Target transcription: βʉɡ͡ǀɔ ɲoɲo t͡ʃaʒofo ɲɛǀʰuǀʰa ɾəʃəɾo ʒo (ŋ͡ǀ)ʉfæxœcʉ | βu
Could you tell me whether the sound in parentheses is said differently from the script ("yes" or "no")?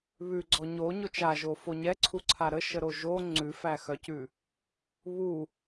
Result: no